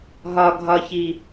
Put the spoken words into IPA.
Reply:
ɦ ɒ ɡʱ ɒ ç i

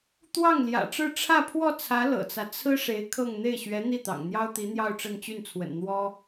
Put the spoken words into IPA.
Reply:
t̪ w ɑ˥˩ ŋ l j ä̰˨˩ ʈ͡ʂ ɻ̩˥˧ ʈ͡ʂʰ ä˥˧ pʰ w ɔ˥˩ t͡sʰ ä˧˥ l ɤ̰˨˩ t͡s ä˦ t͡sʰ ɹ̩˥ ʂ e˧˥ ɪ̯ kʰ ɤ˥˧ ŋ n̪ e˥˩ ɪ̯ ɕ ɥ ɛ˧˥ n̪ i˥˩ t̪ ɑ̰˨˩ ŋ n̪ j ɑ˥ ʊ̯ t̪ i˧˥ n̪ j ɑ˥˧ ʊ̯ ʈ͡ʂ ə˥˧ n t͡ɕ y˥˩ n t͡sʰ w ə̰˨˩ n n̪ w ɔ˥

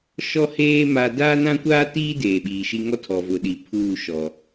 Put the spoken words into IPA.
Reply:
ʃ ɔ˦ h eː˦ m a˦ d aː˦ n ã˦ kʷ aː˦ t iː˦ d eː˨ ɓ iː˨ ʃ i˦ ŋ ɔ˦ tʰ ɔ˨ v ʊ˨ ɗ i˨ pʰ uː˦˨ ʃ ɔ˨

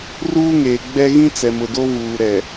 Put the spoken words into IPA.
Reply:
r uː˦ ŋ eː˨ ɡ͡b ɛ˦ ɣ ĩ˦ t͡s ɛ˨ m ʊ˨ d o˦ v uː˨ ɾ ɛ˨

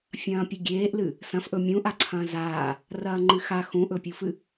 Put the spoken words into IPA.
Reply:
fʲ ɐ̃ː pʲ ɵ ɡʲ eː ʔ l ɨ | s ɐ̃ f ʔ ɵ mʲ ũ ʔ a ǀʰ ɐ̃ː z aː | r ɐː ŋ͡ǃ ɨ x a x ũ ʔ ɵ pʲ u f ɨ

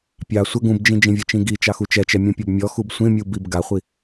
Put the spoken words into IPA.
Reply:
pʲ ɑ sʷ ə ɡ ũ b d͡ʒ ĩ d͡ʒ ĩ vʲ ə t͡ʃ ĩ ɡ i t͡ʃ ɑ x u t͡ʃ ɛ t͡ʃ ɛ mʲ ũ pʲ ɔ b mʲ ɔ x u b sʷ ĩ mʲ u b i b ɡ a χʷ i

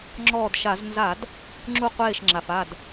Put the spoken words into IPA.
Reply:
ŋ͡ǁ ɔː˧˩ d ʃ a˧˩˧ z n z a˧˩˧ d | ŋ͡ǁ u˧˩ qʷ eː˧˩ ʃ ŋ͡ǁ a˩ f a˧˩ d

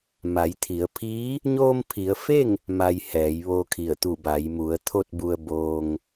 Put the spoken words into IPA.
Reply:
m a˩˧ j t̪ʰ i˩˧ ə̯ pʰ iː˧˥ | ɲ oː˧ m pʰ i˩˧ ə̯ f e˥˨ ŋ | m a˧ j h ɛː˩˧ j ʋ oː˧ kʰ i˧˩ ə̯ t̪ u˧˩ b a˩˧ j m u˩˧ ə̯ t̪ʰ o˥˨ t̚ b u˧ ə̯ b oː˧ ŋ

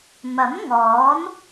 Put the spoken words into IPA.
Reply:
m ɐ˨˥ m ŋ ɔː˨˥ n

